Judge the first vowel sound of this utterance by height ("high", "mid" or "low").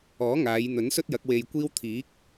mid